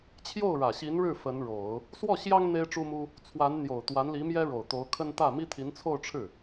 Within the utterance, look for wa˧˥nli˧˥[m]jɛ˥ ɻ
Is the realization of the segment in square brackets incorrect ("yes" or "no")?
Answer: no